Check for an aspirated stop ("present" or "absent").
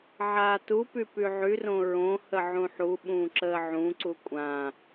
absent